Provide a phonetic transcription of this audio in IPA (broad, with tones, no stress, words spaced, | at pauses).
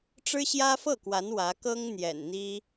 ʈ͡ʂɻ̩˥ɕjä˥fɤ˥˩kwa˧˥n wä˧˥kɤ˥ŋ n̪jɛ̰˨˩nn̪i˥